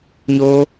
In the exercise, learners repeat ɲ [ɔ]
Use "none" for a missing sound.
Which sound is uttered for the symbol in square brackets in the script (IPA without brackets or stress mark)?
o